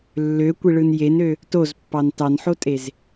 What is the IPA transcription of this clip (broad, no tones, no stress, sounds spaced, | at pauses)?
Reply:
lː ø kʷ i ɭ ɯ n j e n ø | t o z pː ɑ n t ɑ n ħ o tʼ e z